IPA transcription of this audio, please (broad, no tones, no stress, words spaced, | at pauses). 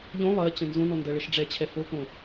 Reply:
ʎõ lˠɜt͡ɕə̃ nzõnɔ ndɜɭəʃɖ͡ʐɛt͡ɕʰɛ fokõ